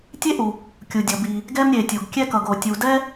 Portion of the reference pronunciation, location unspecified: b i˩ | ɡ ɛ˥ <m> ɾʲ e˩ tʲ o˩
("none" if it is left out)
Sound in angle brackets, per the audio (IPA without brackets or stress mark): m